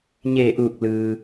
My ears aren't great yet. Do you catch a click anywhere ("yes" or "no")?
no